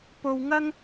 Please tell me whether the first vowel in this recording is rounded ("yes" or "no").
yes